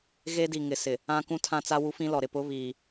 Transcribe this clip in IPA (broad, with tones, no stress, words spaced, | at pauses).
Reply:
ɣe˦di˨ ŋɪ˨sɪ˨ | ã˦kũ˦tʰã˦t͡sa˦ wu˦fĩ˦lɔ˨ ɾɪ˨pʊ˦ βiː˨